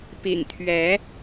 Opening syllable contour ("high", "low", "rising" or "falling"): low